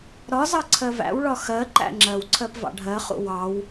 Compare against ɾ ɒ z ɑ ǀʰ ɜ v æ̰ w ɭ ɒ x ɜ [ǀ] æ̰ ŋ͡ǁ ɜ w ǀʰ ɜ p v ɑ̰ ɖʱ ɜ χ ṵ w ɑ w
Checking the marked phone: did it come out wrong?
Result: yes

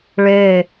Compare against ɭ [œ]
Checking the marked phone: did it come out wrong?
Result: yes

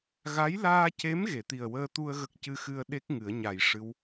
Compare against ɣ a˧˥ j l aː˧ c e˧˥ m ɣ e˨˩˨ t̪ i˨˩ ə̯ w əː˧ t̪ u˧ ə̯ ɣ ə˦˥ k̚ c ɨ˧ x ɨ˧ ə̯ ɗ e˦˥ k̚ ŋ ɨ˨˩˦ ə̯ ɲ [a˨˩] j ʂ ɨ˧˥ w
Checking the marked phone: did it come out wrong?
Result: no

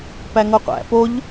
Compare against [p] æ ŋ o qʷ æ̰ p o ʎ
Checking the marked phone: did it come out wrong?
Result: no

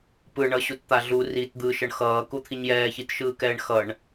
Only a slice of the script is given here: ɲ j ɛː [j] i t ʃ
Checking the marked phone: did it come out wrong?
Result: yes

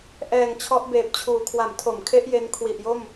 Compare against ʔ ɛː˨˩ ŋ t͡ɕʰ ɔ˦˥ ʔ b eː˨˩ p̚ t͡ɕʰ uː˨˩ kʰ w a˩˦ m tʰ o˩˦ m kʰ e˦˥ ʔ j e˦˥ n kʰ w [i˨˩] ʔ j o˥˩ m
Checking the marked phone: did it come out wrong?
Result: no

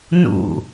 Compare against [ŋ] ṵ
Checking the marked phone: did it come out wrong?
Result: yes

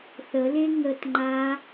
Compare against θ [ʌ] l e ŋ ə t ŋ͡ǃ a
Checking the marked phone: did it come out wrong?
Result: yes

